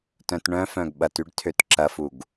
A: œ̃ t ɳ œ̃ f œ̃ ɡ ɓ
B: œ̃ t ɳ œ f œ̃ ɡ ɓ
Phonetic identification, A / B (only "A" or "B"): A